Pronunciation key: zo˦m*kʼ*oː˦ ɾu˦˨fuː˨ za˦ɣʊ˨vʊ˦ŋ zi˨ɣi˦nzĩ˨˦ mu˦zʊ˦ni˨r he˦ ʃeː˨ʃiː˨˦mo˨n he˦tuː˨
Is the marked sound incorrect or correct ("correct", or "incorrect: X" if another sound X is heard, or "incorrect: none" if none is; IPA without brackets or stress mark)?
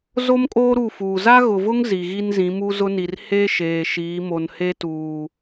correct